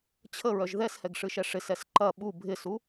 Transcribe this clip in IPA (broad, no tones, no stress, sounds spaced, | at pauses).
t͡ɕʰ ə ɹ œ ʒ ð ɛ s h ɛ ɡ ʂ ɨ ʃ ɛ ʂ ɪ s ɛ s ǃ ɐ ɓ u bʱ ɪ s u